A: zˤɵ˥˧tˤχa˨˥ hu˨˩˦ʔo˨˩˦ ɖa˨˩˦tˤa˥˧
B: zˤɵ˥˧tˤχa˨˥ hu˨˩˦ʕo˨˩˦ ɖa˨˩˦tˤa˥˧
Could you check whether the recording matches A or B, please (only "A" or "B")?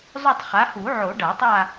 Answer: B